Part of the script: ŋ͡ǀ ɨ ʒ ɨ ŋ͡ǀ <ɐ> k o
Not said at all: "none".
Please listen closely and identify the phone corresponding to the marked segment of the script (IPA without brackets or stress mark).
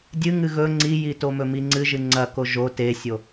ɐ